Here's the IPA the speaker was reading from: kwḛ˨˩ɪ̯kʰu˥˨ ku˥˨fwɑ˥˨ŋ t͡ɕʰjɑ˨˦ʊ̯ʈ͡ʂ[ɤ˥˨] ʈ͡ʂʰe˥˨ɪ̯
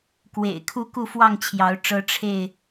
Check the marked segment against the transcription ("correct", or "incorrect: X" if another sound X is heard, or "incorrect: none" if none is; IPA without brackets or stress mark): incorrect: ɤ˦